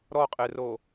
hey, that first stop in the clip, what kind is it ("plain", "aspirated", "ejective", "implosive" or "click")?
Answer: ejective